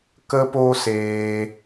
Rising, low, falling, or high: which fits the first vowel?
high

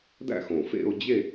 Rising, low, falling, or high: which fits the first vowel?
falling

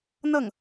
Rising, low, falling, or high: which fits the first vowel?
falling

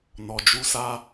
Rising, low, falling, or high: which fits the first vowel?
low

